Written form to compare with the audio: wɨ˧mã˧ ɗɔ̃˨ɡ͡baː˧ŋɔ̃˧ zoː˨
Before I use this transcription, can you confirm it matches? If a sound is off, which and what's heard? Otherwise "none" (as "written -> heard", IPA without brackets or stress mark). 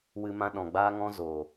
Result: none